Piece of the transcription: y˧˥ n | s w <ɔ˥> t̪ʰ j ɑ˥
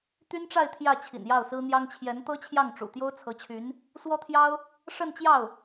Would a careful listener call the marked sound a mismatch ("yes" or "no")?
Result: no